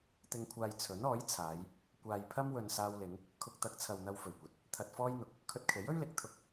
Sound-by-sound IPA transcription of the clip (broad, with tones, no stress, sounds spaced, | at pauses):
t̪ ɪ˨ ŋ kʷʰ aː˨ j t͡sʰ ɵ˨˥ n ɔː˨˥ j t͡sʰ aː˨˧ j | kʷ aː˨ j pʰ ɐ˥ m w ɵ˨ n s aː˧ w l ɪ˨˧ ŋ | kʰ ʊ˧ k̚ t̪ ɐ˨˥ k̚ t͡sʰ ɐ˨ w n̪ ɐ˧ w f ɵ˨˩ ɥ kʷ ɐ˨˥ t̚ | t̪ʰ ɐ˧ t̚ f ɔː˥ j n̪ ʊ˨ k̚ | kʰ ɵ˧ t̚ kʰ e˨˥ j ɵ˥ ɥ l ɪ˨˥ k̚ t̪ʰ ʊ˧ k̚